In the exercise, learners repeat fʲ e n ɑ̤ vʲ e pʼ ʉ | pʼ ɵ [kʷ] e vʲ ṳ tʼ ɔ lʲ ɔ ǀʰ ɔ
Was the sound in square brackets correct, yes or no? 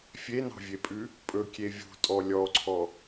no